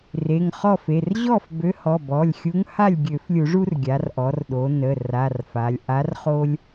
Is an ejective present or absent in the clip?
absent